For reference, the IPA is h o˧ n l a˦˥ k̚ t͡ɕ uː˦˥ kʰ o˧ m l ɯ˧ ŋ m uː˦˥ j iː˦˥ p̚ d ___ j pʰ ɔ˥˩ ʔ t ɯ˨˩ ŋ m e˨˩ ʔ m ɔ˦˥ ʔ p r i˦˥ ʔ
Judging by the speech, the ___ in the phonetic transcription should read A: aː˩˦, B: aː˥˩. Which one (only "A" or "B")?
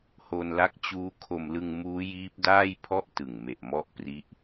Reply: B